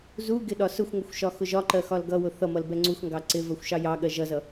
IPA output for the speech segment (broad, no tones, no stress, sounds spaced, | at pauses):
z u ɡ ɪ ɗ ɒ s ʊ xʷ ŋʷ ʌ xʷ ʃ ɒ x ʊ ʒ ɒ ǃ ɜ x ɒ l ɡ ʌ w ʊ θ ʌ m ʌ l b ɛ ŋ͡ǀ u x ŋ ɡ ɑ ǀ ɪ v ɜ xʷ ʃ ɑ j ɑ ɠ ɜ ʒ ʌ z ʌ